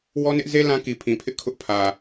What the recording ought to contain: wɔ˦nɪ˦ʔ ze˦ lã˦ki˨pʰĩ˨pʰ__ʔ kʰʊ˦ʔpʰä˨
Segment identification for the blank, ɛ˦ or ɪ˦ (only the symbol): ɪ˦